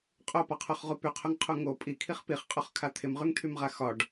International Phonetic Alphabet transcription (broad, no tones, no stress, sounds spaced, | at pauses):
qʼ o p ɒ qʰ o χ ʁ u p y qʰ o ŋ qʰ u ŋ o pʼ i kʰ i χ p i χ qʼ o χ kʰ a t̪ʰ ɪ m ʁ y ŋ t̪ʰ y m ʁ a x ɒ ɖ